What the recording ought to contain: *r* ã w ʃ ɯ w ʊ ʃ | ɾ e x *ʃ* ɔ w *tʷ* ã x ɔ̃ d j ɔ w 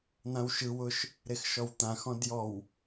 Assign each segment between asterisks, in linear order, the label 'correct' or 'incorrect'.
incorrect: n̪, correct, incorrect: t̪

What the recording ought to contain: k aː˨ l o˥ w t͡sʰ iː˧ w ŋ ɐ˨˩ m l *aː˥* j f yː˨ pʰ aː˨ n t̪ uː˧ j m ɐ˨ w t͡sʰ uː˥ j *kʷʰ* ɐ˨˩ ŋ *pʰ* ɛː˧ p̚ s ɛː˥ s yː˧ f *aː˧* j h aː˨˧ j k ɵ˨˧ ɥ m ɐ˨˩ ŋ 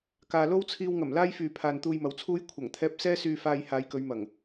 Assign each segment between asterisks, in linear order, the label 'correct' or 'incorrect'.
correct, correct, incorrect: t̪ʰ, correct

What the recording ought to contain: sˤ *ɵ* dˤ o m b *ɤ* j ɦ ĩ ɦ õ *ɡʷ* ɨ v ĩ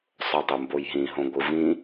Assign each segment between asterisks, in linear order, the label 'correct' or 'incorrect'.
correct, incorrect: o, correct

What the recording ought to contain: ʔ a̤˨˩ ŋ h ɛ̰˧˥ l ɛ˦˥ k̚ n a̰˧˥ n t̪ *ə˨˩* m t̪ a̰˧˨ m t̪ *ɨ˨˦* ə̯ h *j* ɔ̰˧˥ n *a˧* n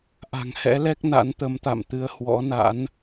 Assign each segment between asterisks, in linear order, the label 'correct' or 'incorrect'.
incorrect: ə˨˦, correct, incorrect: w, incorrect: a̰˧˥

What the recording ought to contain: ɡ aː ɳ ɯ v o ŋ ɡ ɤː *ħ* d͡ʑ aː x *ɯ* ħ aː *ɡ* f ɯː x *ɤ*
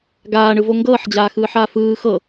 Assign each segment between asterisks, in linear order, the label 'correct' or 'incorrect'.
correct, incorrect: ɯː, incorrect: none, correct

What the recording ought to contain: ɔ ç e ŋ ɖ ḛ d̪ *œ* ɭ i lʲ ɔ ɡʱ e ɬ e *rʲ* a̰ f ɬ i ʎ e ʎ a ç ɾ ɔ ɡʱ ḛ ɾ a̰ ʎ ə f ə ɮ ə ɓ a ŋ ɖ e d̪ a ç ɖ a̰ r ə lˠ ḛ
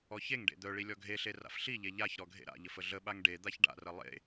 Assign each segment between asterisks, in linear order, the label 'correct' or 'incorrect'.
correct, incorrect: r

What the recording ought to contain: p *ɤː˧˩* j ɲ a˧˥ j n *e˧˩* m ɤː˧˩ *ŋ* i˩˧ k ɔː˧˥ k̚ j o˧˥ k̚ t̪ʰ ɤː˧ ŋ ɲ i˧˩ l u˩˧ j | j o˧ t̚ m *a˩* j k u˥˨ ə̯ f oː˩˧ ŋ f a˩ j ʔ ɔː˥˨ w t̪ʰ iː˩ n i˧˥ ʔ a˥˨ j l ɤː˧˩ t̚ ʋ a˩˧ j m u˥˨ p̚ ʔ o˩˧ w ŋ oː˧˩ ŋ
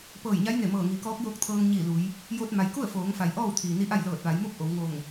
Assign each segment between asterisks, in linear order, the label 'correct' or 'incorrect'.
correct, correct, correct, correct

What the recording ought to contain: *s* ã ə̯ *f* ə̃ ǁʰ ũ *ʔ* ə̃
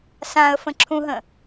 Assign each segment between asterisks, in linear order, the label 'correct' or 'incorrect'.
correct, correct, incorrect: ɦ

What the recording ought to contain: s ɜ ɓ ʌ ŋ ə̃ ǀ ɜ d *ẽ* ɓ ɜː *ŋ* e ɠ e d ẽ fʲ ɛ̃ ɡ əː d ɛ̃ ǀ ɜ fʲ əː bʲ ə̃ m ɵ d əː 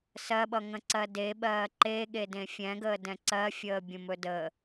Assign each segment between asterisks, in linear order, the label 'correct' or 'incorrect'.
incorrect: e, incorrect: ǃ

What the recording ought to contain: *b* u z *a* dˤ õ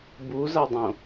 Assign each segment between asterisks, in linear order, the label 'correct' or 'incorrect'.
correct, correct

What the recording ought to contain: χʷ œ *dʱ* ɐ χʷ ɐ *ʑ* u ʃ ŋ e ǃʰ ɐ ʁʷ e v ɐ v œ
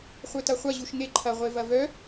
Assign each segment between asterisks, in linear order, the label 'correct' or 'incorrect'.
incorrect: t, correct

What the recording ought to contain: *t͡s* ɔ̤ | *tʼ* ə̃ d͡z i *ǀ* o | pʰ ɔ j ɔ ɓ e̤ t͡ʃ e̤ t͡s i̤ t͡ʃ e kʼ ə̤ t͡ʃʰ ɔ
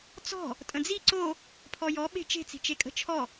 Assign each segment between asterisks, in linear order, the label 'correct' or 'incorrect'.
correct, correct, correct

